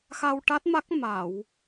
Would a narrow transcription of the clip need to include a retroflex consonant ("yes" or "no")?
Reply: yes